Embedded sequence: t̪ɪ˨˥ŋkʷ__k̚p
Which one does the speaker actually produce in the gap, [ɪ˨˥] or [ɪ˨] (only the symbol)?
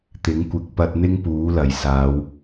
ɪ˨